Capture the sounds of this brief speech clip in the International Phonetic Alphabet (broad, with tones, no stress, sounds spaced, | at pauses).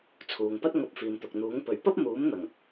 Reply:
t͡sʰ uː˨ ŋ p ɐ˥ t̚ ŋ ɐ˧ p̚ f iː˨ m t̪ ʊ˨ k̚ n̪ uː˨˥ ŋ p ɵ˨˥ ɥ p ɐ˥ p̚ m uː˨˥ m n̪ ɐ˨˩ ŋ